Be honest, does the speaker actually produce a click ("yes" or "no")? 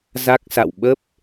no